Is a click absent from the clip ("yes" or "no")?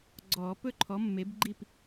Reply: no